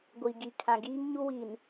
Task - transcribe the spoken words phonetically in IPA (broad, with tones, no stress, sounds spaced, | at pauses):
ɡʷ i˨ ɡ i˨ kʰ ã˨ ɡ iː˦ ŋ ɲ u˦ w i˨ n